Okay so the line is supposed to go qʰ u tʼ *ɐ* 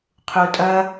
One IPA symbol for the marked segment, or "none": ɐ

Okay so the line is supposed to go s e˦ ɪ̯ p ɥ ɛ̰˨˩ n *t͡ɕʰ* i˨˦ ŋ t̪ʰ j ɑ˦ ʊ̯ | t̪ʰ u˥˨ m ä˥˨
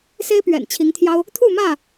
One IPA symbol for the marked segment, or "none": t͡ɕʰ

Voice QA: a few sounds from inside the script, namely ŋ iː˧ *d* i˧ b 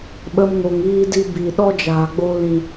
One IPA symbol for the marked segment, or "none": d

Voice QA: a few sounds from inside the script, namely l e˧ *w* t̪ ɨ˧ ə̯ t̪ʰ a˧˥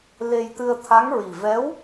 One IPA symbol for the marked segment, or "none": j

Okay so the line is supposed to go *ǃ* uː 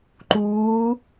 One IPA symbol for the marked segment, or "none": ǃ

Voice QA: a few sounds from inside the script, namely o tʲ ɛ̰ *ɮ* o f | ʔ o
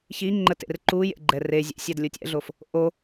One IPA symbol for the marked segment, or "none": ɮ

